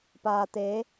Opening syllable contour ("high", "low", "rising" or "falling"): low